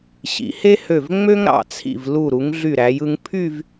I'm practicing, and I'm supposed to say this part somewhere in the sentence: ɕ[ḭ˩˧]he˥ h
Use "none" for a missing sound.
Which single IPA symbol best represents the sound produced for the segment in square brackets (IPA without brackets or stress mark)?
ḭ˩˧